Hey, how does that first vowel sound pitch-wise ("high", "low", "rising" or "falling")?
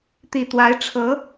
low